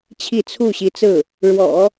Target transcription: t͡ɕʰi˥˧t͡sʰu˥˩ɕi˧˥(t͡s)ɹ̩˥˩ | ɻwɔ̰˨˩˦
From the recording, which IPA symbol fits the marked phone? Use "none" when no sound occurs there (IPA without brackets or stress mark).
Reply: t͡s